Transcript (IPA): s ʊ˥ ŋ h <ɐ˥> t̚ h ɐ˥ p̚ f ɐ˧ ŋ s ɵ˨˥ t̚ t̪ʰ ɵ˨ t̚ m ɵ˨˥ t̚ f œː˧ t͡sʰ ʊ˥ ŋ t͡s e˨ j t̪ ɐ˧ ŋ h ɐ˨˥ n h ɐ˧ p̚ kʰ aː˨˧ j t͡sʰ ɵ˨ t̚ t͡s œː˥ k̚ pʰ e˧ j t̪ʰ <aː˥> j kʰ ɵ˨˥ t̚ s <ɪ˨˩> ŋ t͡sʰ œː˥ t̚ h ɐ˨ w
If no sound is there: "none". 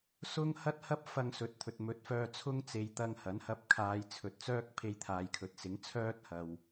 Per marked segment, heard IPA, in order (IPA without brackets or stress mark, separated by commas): ɐ˥, aː˨, ɪ˨˥